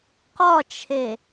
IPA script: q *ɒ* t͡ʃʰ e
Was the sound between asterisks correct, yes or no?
yes